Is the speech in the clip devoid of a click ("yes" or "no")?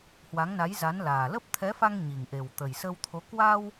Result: yes